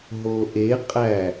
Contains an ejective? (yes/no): yes